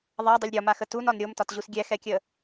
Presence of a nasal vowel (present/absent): absent